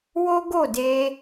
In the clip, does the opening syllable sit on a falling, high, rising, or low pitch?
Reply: high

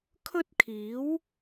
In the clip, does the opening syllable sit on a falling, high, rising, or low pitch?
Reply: high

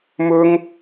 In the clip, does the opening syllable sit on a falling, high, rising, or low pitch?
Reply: high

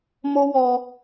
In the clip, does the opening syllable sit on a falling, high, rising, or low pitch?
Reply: high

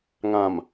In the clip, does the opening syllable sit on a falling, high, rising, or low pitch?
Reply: low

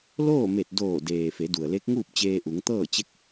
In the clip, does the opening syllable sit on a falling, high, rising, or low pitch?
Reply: falling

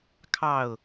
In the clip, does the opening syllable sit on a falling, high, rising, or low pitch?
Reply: falling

